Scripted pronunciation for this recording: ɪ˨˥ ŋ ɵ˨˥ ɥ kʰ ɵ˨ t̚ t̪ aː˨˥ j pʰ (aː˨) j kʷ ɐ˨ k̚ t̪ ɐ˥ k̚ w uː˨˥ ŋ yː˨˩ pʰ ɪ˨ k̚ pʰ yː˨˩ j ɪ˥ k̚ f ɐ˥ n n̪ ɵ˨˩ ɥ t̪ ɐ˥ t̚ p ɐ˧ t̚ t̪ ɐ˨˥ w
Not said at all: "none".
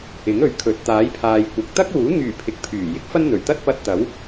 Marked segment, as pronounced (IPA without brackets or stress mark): aː˨